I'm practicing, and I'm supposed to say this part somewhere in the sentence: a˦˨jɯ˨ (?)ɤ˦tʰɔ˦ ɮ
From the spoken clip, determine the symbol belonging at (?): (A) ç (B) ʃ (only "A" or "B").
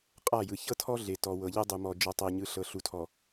A